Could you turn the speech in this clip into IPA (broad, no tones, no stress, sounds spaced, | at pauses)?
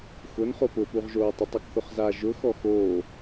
x ʊ n χ o p ʊ p u ʁ ʒ oː tˤ ʊ tˤ ɔ k θ ʊ χ z a ʒ ʊ x ɔ x oː